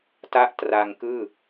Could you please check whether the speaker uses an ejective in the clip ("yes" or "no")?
no